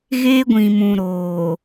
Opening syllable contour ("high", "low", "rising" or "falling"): high